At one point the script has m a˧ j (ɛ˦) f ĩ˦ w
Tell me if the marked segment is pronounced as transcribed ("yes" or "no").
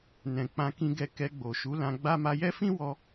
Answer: yes